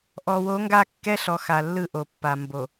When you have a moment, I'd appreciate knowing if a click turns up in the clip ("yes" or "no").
no